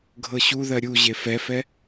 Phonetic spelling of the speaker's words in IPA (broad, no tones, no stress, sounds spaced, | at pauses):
ɡʱ ɤ ɕ u ð ɜ ɾʲ u ʑ e f ɛ f ɛ